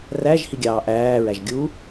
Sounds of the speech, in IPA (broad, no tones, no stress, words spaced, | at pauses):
ræʒ hiɡʲɑːʔæː ɹæʒɡʲu